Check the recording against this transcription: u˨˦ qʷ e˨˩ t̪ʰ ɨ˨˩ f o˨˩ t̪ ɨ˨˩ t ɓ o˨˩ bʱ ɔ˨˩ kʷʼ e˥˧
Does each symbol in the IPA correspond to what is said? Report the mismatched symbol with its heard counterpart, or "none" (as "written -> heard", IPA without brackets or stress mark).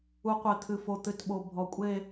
none